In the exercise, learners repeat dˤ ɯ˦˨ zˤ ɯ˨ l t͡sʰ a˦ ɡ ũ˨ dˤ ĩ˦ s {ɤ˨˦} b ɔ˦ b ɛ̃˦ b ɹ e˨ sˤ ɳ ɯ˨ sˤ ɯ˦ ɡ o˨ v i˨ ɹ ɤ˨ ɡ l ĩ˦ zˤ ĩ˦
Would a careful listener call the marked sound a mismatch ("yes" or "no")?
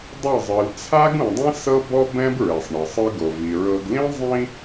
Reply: yes